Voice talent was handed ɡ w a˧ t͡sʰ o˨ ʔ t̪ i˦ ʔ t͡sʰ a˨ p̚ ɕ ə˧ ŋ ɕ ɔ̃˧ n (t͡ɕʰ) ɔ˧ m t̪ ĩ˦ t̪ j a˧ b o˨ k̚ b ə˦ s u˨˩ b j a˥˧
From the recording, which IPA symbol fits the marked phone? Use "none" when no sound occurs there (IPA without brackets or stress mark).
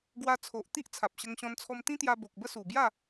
t͡sʰ